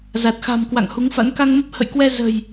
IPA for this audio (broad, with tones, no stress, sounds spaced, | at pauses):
z a˨˩ t̚ x a̤˨˩ m k w a̰˧˨ ŋ h u˨˦ ŋ f a̰˧˥ n k a˧ ŋ m ə˦˥ p̚ h ə̰˧˨ j k w ɛ˧ z ə̤˨˩ j